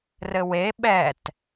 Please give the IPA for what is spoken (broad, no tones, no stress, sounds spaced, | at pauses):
r ɘ w e ɓ ɛ t